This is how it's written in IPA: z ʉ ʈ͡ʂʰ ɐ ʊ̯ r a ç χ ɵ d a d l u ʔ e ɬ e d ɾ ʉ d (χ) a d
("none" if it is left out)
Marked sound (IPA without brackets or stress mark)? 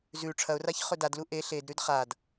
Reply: χ